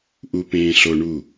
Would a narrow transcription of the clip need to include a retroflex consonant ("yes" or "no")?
yes